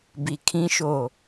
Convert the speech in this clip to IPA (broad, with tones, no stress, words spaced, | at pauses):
bi˨kʰĩ˦ʃo˦˨